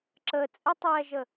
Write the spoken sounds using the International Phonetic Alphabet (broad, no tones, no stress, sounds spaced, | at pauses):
ǁ əː t͡sʼ ɛ tˤ ɛː ʒ ə